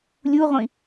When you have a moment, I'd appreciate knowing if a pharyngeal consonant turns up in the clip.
no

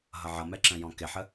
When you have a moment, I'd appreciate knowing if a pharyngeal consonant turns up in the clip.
yes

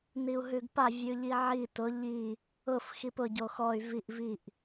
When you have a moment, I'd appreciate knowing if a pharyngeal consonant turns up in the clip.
yes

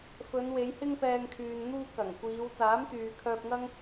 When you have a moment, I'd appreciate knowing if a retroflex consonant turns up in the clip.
no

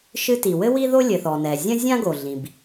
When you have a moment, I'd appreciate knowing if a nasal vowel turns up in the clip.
yes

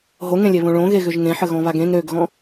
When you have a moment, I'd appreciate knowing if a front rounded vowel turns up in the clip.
yes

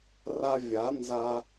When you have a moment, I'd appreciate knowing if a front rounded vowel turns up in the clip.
no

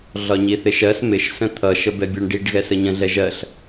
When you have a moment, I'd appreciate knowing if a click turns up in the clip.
no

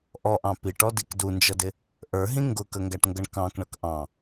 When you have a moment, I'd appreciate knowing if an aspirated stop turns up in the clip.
no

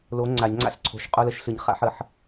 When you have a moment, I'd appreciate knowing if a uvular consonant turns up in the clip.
yes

